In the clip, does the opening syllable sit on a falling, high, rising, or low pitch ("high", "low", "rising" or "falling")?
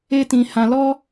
high